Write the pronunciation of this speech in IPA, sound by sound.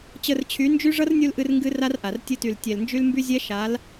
t͡ɕə˧rt͡ɕʰy˨˦nd͡ʒy˦ ʐʌ˦rnʲu˧l ʔɨ˦rŋɡɨ˦ra˦rʔa˨r tʲɨ˧ty˨ltʲɛ˨lnd͡ʒy˦l mby˦zʲɛ˦ ʃa˨˦l

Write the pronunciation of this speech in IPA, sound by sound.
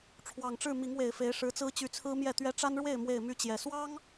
ʈ͡ʂʰwɑ˨˩ŋʈ͡ʂɻ̩˥˨ mi˨˦ŋwe˨˩ɪ̯fe˨˦ɪ̯ ʂɻ̩˨˦t͡sɹ̩˦t͡ɕy˨˦ t͡sʰɹ̩˦mjɛ˥˨t̪ɥɛ˦ ʈ͡ʂa˦nɻwe˥˨ɪ̯ mwe˥˨ɪ̯my˥˨t͡ɕjɛ˨˩ swɑ˦ŋ

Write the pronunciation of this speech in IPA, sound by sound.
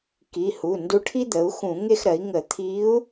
ki˩˧˩hu˩˧˩ ndu˧˥ʈʰi˥d̪ə˩˥u̯ xũ˧˩˧ ŋe˥˨xɾɜ˩˥i̯ ŋə˧˩˧t̪ʰi˧˥u̯

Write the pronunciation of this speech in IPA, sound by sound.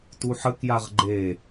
tuħəkjaʁ ɡ͡ǃe

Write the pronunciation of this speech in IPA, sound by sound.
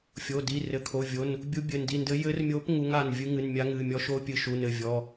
fʲo˩˧˩di˩˧˩ rɘ˩˧˩kʰo˩˧˩vʲo˩˧˩n | bʲu˧˥bʲɘ˩˧˩ndi˩˧˩ndɘ˧˥ jɘ˧˥rmʲo˧˥p ŋu˧˥ŋa˩˧˩n vʲɨ˧˥ŋɨ˩˧˩nmʲa˧˥ ŋɨ˩˧˩mʲɔ˧˥ʃ o˧˥ pʲɨ˧˥ʃu˩˧˩nɘ˩˧˩ vʲɔ˩˧˩

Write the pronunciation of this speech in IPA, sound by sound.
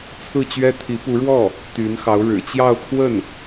t͡sʰɹ̩˥˩t͡ɕɥɛ˥ t̪ʰi˧˥pu˧˥ɻwɔ˥˩ | t̪y˧˥nxɑ˧˥ʊ̯ ɻɻ̩˨˩t͡ɕjɑ˥˧ʊ̯kʰwə˥˩n

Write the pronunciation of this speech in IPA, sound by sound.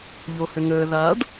ʎohʏŋəː ðaɖ

